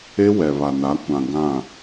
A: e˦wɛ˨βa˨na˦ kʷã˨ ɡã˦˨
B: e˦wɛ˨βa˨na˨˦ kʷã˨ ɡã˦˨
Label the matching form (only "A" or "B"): B